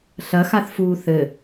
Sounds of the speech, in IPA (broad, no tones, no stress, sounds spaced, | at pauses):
ɬ ɐ x a θ f uː θ ɘ